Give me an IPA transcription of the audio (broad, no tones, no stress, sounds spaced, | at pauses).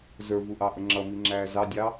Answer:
z ə˞ v u ʔ ɑ ʔ ə ŋ͡ǁ ʌ m i ŋ͡ǁ æː z ɑ dʲ ɑ